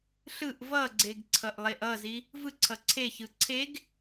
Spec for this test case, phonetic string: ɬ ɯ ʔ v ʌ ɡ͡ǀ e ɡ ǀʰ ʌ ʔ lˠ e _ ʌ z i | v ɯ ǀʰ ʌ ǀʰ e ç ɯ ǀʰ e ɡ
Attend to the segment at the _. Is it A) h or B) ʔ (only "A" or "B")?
B